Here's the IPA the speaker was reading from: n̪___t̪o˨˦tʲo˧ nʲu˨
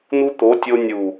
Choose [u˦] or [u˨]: u˦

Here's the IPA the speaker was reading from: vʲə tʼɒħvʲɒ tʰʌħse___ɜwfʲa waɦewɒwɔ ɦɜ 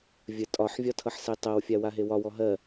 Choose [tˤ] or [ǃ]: tˤ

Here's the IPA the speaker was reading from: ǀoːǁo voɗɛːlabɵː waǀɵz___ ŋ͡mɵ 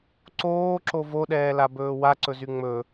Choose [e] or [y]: y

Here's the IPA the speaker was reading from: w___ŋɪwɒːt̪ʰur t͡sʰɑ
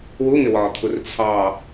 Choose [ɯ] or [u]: u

